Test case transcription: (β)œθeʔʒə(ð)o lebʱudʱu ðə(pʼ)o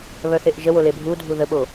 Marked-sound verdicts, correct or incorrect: correct, incorrect, incorrect

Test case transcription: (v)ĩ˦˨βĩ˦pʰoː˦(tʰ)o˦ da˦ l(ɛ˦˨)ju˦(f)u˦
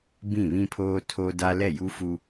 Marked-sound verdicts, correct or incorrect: incorrect, correct, correct, correct

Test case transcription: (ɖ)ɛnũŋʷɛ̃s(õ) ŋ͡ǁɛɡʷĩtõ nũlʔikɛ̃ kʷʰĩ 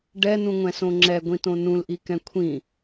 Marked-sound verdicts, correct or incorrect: correct, correct

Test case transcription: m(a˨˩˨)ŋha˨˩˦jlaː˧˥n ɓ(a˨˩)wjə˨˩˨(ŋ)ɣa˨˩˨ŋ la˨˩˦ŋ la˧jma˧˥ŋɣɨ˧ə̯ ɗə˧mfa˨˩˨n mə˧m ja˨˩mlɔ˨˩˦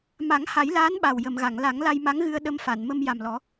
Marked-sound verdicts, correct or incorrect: incorrect, correct, incorrect

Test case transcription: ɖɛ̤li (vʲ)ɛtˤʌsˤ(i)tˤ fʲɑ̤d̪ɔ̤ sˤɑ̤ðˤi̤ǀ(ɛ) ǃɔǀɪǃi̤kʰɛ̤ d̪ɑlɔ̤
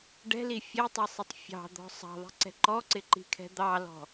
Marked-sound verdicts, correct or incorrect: incorrect, incorrect, incorrect

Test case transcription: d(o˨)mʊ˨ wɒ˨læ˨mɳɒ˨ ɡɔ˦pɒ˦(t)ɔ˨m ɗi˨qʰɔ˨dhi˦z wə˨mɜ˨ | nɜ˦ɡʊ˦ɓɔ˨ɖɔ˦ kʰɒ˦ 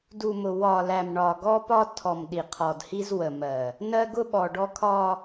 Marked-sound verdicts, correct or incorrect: incorrect, incorrect

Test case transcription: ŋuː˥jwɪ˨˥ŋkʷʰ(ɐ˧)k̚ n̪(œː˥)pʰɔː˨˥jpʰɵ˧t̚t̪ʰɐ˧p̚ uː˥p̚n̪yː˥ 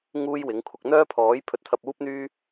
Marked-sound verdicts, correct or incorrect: correct, correct

